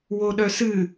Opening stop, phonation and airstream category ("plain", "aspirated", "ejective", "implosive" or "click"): implosive